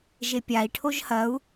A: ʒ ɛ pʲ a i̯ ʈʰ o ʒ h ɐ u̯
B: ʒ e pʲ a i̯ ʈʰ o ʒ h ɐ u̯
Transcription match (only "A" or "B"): B